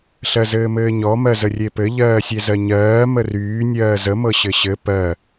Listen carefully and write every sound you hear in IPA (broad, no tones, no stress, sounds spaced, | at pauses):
ɬ ɜ z ɘː m ɘː ɲ ɔ m ɜ z ə rʲ e p ɘ ʎ ɜː sʲ e z ɜ ɲ ɜː m ə r yː nʲ ɜː z ə m ɤ ɕ ɘ ɕ ɘ p ɜ